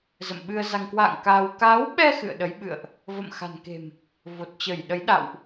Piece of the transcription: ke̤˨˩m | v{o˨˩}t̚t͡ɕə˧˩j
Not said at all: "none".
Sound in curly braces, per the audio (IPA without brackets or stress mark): o˨˩